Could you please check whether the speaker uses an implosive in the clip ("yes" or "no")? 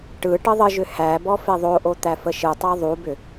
no